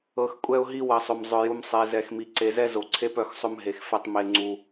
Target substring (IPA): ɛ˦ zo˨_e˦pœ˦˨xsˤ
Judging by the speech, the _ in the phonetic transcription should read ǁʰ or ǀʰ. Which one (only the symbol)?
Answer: ǀʰ